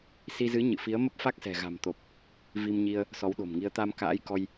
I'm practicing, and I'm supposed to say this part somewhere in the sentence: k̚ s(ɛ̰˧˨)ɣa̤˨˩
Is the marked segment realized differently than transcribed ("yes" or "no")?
yes